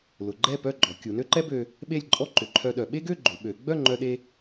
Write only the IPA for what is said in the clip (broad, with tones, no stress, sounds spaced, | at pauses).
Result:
l ʊ˩˧ ɡ͡ǃ ɛ˥˧ p œ˥˧ ɡ͡ǃ ɔ˩˧ kʲ u˩˧ n ø˥ ǃ ɛ˥ b ø˧ | ɓ e˥˧ lʲ ǃʼ ɔ˥ ǃ ʏ˩˧ ǃʰ œ˧ ɗ œ˩˧ ɓ e˥ ɡ ø˥˧ ɡ͡ǃ ʏ˩˧ ɓ ø˩˧ ɡ͡b œ˥˧ ŋ͡ǃ œ˧ ɗ e˧